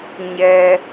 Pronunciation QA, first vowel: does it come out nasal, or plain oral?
oral